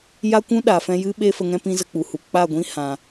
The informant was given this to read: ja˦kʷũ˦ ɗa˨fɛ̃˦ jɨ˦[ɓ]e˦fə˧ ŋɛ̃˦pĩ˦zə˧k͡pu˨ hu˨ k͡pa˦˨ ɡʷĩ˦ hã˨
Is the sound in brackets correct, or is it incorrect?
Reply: correct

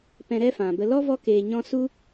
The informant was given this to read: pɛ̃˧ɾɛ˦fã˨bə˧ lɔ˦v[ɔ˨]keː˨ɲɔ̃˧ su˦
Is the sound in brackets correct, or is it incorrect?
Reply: incorrect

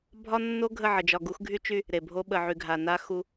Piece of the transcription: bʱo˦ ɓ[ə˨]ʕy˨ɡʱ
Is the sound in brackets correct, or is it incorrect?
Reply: correct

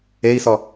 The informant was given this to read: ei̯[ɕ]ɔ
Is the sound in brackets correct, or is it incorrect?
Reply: incorrect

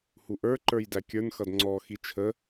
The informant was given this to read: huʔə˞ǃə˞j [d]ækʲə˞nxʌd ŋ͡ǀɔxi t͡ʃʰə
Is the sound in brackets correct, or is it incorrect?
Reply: correct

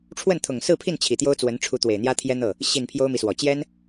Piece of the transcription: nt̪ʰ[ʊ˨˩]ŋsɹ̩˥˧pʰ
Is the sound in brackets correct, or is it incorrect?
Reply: correct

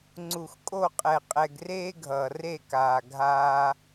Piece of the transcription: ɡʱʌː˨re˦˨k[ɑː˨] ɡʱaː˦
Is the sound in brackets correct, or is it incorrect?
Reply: incorrect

